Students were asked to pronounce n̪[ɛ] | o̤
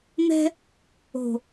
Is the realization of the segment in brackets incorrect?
yes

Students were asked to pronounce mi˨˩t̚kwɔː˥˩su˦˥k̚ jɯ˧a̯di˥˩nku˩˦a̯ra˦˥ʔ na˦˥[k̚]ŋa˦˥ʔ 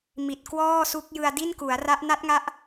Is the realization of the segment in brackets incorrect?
yes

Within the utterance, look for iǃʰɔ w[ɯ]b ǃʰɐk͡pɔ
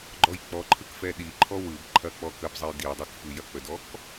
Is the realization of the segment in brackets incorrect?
no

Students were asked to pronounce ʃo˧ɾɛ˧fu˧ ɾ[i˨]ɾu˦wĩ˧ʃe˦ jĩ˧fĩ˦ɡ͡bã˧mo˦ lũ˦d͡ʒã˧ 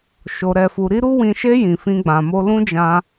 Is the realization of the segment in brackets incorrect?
yes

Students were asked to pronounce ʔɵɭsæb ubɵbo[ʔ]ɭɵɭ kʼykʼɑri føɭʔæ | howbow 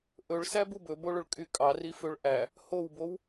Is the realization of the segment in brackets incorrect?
yes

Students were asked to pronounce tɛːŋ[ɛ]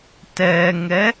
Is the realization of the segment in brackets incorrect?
no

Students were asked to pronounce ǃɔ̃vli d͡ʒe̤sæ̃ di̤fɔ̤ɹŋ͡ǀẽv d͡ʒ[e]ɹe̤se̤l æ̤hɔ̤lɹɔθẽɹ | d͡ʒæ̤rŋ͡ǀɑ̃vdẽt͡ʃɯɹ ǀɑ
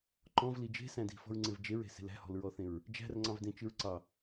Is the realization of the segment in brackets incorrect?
no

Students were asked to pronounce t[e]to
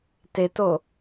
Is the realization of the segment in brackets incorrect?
no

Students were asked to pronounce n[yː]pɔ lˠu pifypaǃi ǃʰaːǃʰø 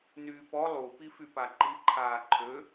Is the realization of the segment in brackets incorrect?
no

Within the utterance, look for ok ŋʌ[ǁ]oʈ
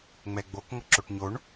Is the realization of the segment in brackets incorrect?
no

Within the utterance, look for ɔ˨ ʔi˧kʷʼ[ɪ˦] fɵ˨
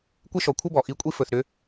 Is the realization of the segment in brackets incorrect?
yes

